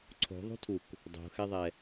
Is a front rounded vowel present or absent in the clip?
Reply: absent